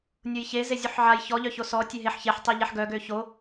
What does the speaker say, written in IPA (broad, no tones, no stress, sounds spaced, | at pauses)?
nʲ o j ç e z e zʲ u ħ ʕ a j ç ɔ ʎ œ ç o s ɔ tʲ e ɦ e ħ ç e ħ tˤ i ʎ ɛ ħ ɡ œ ɡ ø ç o